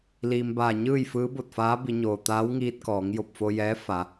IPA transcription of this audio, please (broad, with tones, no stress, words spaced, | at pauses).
liː˩mbaː˧˩ɲɯː˥˨j fɯː˧˥bo˧˩t̚faː˧˥ bi˩˧ɲoː˩ t̪aː˧˥wŋiː˧t̚kɔː˩˧ŋ jo˧˩p̚fo˧jɛː˧˥ fa˩˧